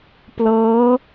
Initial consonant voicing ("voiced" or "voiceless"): voiceless